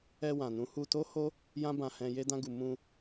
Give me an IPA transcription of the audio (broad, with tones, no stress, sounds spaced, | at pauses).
ɛ˧ w ã˨ n ũ˨˦ h u˧ t o˦ h o˦ | j ã˦ b ã˧ h ɛ̃˧ j e˧ d ã˧ ɡ u˨ m ũ˧